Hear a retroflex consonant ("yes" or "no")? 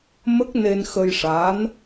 yes